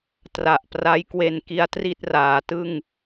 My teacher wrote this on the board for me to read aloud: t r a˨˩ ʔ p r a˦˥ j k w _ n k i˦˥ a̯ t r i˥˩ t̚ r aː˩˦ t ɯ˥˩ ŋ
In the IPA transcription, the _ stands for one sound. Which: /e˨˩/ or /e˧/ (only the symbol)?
e˧